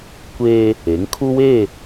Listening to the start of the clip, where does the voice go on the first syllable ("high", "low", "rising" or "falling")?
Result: high